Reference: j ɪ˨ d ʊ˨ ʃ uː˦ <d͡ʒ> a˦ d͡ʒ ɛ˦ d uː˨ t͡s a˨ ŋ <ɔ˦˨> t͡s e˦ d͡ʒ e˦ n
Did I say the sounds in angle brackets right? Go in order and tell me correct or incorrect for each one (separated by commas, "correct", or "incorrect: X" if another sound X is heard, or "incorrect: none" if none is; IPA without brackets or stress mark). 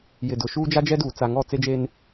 correct, correct